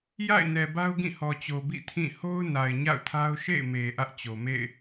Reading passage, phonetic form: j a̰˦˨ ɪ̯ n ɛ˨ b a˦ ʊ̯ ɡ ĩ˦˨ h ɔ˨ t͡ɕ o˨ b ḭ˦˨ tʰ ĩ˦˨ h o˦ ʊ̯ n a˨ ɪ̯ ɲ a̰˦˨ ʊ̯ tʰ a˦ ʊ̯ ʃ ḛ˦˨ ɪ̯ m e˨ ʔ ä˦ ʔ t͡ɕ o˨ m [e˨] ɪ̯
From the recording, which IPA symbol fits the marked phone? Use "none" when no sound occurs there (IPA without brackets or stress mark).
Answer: ḛ˦˨